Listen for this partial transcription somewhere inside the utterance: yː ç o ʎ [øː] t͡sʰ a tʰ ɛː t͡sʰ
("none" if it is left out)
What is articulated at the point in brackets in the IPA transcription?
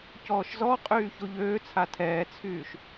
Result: øː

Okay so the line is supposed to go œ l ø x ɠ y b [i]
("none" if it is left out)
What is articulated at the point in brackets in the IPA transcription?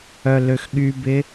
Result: ɪ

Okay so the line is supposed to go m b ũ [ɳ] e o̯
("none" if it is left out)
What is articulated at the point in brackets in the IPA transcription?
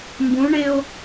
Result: ɳ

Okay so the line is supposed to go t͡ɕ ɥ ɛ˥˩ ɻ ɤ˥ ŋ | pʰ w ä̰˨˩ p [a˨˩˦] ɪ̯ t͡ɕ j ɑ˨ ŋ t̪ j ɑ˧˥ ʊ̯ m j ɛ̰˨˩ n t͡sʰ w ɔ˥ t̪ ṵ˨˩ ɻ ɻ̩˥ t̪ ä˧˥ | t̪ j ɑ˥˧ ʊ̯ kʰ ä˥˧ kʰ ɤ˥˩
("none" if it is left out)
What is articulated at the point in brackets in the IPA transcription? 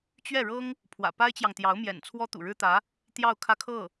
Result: a˥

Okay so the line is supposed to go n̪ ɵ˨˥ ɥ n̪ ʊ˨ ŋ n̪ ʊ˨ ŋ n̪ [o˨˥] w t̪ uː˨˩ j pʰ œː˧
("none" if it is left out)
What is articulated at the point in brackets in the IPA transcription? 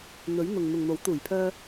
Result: o˨˥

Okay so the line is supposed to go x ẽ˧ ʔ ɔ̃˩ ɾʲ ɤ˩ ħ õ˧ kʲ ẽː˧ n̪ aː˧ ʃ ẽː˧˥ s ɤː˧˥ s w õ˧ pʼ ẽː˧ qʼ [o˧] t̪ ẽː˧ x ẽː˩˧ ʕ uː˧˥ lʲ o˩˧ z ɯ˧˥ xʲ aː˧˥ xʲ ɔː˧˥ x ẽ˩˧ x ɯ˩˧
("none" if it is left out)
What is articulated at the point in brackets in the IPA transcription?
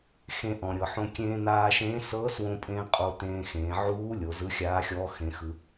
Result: o˧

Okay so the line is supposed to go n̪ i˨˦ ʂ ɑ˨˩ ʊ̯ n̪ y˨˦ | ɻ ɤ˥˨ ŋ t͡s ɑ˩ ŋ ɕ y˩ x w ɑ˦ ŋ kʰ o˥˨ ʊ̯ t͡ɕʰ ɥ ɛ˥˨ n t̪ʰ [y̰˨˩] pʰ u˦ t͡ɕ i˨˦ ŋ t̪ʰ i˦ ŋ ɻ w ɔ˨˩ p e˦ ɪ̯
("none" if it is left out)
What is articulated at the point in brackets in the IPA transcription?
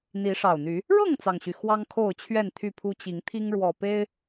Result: y˥˨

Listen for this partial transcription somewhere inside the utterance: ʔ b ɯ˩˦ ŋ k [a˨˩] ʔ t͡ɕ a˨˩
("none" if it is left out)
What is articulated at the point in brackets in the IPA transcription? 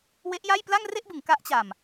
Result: a˦˥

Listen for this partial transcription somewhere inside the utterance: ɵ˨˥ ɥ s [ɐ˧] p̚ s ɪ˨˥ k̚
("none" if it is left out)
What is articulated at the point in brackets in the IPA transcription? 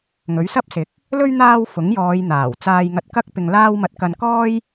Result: ɐ˥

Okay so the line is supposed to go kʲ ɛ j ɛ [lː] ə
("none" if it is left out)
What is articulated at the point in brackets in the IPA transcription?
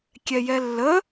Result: lː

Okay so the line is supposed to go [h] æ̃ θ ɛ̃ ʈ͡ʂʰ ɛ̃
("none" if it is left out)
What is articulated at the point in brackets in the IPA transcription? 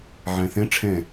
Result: ʕ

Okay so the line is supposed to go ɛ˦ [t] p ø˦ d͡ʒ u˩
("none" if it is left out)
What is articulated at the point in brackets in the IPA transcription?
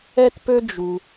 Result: t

